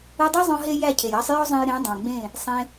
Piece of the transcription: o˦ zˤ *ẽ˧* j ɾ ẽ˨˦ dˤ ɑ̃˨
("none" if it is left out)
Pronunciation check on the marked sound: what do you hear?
ẽ˧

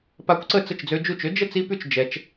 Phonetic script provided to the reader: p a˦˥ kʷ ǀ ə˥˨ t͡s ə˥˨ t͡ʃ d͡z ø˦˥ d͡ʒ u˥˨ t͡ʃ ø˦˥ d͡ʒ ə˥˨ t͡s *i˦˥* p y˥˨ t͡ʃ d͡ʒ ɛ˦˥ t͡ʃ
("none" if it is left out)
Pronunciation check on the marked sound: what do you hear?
i˦˥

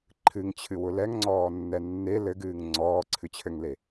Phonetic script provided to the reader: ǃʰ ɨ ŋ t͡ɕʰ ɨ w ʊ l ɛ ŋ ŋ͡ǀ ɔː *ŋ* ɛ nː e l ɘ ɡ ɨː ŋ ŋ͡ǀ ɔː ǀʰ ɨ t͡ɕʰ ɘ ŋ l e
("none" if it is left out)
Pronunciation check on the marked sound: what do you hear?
nː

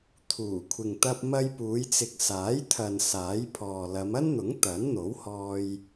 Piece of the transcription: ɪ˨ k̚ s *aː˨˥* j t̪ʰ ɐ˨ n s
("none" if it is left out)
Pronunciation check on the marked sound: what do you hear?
aː˨˥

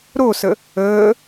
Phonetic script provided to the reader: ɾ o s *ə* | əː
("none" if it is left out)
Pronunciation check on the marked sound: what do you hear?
ə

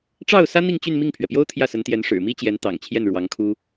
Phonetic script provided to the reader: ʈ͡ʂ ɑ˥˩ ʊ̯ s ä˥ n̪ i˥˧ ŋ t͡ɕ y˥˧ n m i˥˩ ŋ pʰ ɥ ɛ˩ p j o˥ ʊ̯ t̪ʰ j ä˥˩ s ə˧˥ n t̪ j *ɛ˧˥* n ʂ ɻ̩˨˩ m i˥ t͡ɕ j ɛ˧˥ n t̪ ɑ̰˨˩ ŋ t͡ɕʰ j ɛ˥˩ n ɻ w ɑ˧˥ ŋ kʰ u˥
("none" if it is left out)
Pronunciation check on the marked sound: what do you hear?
ɛ˧˥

